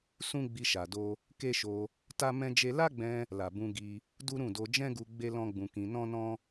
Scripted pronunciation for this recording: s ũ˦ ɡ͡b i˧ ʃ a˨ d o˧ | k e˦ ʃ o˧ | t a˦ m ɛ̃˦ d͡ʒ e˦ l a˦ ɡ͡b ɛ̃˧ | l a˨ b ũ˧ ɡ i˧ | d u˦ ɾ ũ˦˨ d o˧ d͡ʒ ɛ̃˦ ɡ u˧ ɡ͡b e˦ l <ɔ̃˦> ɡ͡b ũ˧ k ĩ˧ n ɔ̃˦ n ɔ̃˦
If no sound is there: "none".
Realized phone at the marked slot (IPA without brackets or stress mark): ɔ̃˦